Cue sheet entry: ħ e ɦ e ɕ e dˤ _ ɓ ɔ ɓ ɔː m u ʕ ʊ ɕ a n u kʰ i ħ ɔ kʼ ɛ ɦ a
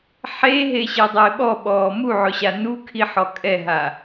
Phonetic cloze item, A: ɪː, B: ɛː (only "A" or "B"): A